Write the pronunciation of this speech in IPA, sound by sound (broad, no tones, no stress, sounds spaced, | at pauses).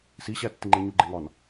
s i ɕ æ tː i ŋ͡ǃ e ɲ u ɡ͡ǃ e ŋ ɒ n